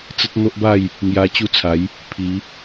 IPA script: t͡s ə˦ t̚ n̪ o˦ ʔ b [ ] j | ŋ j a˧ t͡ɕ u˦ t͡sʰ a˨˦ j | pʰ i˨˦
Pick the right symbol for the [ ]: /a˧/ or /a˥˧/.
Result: a˥˧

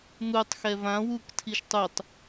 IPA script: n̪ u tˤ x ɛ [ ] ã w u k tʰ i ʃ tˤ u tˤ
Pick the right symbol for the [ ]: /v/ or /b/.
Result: v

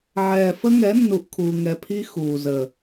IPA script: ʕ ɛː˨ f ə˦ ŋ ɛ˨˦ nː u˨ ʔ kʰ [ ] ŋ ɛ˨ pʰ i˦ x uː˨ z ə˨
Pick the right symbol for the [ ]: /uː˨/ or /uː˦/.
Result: uː˨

